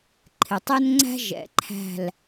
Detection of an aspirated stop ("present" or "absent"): present